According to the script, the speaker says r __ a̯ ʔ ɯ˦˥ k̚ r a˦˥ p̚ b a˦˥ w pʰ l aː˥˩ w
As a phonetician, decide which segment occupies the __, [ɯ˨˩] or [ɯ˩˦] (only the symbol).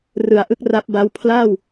ɯ˩˦